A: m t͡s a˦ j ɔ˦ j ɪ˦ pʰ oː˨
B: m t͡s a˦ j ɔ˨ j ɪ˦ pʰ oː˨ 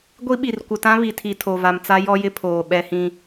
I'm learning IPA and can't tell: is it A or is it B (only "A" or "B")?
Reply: A